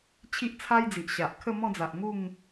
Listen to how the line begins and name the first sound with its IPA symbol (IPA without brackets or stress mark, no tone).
t͡ɕʰ